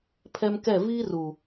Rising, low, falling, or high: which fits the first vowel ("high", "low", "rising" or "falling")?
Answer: high